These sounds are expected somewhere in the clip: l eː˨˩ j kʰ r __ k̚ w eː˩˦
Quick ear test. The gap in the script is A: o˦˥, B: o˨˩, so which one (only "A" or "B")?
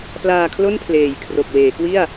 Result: B